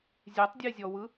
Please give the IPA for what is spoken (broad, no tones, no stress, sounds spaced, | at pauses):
zʲ e tˤ dʲ e zʲ ɔ w ɯ